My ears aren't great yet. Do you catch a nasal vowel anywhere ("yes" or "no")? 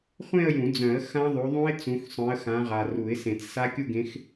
yes